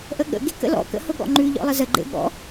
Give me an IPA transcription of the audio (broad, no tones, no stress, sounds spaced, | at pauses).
ʔ ə ɠ ə̰ ɡ e k ə̰ l ɔ̰ k ə̰ h ʊ ɠ ɔ̰ ŋ͡ǃ ʉ ʎ ɔ̰ lˠ ə z ə ɡ͡ǃ ḛ ɠ ɔ̰